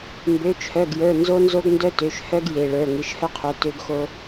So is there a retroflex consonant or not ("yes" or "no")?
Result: yes